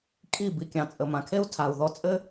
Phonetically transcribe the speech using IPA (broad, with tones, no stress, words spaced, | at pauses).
kʼi˥˩ bi˩kʲɑ̃˩ t͡sʼə˩mã˩kʰe˥u̯ tʰa˩u̯ðɔ˧t͡sʼɘ˥